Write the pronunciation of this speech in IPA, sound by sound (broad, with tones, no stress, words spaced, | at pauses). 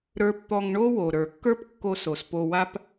ɾə˞˧pt̪ɔ˧ŋɳo˥wo˩ ɾə˞˩kːə˞˥pkːo˧ so˩spo˧wa˥p